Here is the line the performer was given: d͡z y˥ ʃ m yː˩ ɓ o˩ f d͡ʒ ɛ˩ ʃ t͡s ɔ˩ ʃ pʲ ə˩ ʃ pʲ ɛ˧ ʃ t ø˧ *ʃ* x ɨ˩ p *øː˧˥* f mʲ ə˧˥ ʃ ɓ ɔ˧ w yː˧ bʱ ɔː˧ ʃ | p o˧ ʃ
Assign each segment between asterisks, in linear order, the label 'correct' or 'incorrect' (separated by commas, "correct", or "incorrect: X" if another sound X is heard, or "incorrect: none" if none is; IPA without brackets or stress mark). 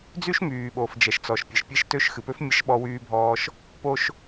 correct, incorrect: ø˧˥